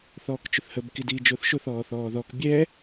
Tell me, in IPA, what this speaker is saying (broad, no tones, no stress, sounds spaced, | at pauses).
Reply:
θ ɔː k t͡ʃ ʊ θ h ə b k i d iː d͡ʒ ʊː θ ʃ ʊ θ ɔː θ ɔː ð ɔ k bʲ ɛ